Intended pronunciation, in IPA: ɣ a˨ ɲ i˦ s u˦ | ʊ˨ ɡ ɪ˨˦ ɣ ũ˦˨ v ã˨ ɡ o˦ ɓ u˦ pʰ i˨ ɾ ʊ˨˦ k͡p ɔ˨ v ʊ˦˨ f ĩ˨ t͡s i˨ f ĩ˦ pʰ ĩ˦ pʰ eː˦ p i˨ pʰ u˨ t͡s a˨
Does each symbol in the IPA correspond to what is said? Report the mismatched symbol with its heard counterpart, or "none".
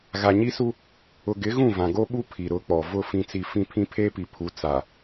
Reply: none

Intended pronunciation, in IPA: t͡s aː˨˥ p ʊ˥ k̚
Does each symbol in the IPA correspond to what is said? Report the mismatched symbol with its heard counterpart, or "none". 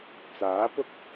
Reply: none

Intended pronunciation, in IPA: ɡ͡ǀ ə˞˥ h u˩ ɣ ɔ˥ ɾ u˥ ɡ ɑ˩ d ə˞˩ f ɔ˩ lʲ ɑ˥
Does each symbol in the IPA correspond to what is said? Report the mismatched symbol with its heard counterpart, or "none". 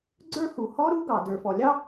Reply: ɣ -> h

